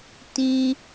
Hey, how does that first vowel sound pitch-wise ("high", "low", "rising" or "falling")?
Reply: high